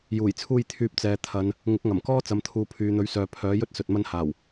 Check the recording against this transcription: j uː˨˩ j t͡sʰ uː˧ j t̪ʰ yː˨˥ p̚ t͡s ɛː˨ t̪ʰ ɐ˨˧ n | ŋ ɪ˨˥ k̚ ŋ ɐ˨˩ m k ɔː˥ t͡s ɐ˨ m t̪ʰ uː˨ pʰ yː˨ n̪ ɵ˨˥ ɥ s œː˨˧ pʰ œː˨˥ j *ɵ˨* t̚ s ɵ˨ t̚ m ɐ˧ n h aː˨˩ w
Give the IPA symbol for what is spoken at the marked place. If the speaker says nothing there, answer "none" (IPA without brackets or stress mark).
ɵ˥